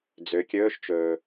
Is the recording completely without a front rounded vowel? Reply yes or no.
no